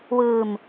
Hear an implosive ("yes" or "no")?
no